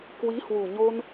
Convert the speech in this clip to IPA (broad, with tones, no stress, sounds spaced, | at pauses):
k w i˨˦ h w u˨˩ ɲ o˧ n